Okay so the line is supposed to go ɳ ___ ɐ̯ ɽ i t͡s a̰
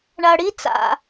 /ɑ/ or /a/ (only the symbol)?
a